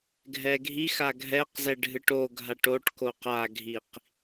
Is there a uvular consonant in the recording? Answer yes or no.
yes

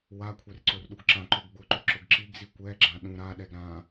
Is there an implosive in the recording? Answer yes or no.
yes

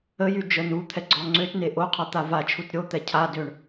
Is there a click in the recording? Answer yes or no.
yes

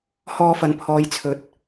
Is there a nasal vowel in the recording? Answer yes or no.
no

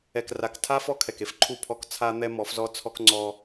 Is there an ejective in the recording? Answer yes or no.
no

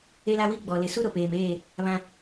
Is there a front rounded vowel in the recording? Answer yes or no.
no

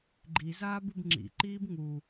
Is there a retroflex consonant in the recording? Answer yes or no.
no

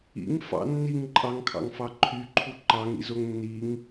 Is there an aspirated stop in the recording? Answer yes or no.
yes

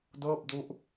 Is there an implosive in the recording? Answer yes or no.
no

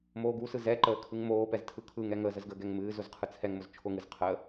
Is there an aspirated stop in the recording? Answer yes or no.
yes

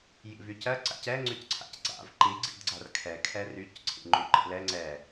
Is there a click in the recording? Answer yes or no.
yes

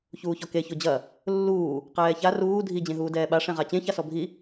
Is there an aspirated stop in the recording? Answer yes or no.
no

